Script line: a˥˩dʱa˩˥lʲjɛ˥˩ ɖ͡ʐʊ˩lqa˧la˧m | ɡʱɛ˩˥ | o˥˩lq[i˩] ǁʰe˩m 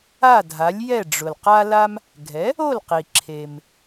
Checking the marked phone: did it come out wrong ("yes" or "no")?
no